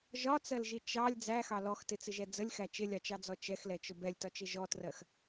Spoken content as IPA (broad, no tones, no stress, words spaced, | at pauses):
ʒɒt͡sɜlʒi t͡ʃɑlʲ d͡zæxɑ lɔxtɪt͡sɪʒɛ d͡zəlʲxæ t͡ʃɪlʲɑt͡ʃɑd͡zɔ t͡ʃɛxlɛt͡ʃʊ bɛlʲtɒt͡ʃɪ ʒɔtrɜx